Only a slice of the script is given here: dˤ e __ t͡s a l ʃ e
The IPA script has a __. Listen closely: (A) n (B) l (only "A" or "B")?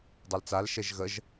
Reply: B